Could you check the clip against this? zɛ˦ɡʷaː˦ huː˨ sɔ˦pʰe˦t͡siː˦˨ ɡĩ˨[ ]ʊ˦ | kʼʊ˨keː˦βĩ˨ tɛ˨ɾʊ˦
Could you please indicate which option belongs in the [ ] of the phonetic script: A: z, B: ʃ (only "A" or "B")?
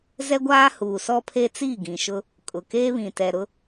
B